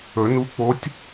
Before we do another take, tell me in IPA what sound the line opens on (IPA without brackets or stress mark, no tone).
ɵ